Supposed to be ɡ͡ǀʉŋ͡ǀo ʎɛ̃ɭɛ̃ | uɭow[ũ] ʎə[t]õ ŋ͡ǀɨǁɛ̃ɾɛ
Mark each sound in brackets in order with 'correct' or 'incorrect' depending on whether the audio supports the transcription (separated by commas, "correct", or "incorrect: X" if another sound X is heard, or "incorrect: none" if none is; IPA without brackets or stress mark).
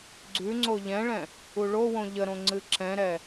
incorrect: õ, incorrect: ɾ